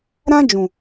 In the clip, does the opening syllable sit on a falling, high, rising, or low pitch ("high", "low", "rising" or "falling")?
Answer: high